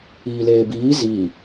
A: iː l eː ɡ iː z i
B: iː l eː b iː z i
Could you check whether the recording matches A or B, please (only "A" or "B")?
B